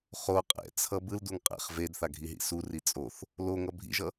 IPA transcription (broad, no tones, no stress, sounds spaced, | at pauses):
χ o qʼ ɛ̰ t͡sʰ ʌ b ɯ l d u ŋ qʼ ɛ̰ χ v e d θ a ɡʱ i ɦ ḭ s u r i t͡sʼ o θ | l o ŋ ʌ bʱ ḭ ʒ ʌ